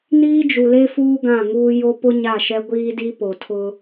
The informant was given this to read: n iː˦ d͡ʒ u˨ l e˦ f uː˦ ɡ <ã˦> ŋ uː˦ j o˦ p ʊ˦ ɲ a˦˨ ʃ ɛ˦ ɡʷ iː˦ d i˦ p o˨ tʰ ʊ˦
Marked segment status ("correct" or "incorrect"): incorrect